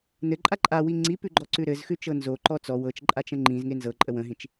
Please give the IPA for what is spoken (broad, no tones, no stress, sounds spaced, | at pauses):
n ɘ ǃʼ a ǃʼ a w i ŋ͡ǀ i p ʉ ɡ͡ǃ ɔ ǀ ʉ ɾ ɘ z x ʉ t͡ʃ ɤ n z o ǃ ɔ t͡s ɔ w ɤ t͡ʃ ǃʼ a t͡ʃ ə̃ ŋ͡ǃ ĩ z ŋ e n z ɤ ǃʼ ə w ə̃ ɦ ĩ t͡ʃ